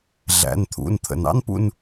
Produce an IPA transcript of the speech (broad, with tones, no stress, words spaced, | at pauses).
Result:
ɮæ̰˩˧˩nt̪ʰṵ˩˧˩nt̪ʰə̰˩n ɑ̰˥npṵ˦˨n